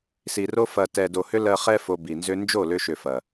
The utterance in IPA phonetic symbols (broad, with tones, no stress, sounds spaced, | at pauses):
s i˨ r o˦ f ɐ˨ t ɛ˨ d o˨ h ʏ˦ l ɜ˧ χ ɛ˦ f o˧ b i˨ n z ʏ˦ n d͡ʒ o˦˨ l ʏ˧ ʃ ʏ˨ f ɐ˨